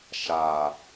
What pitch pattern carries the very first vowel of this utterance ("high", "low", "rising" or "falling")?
low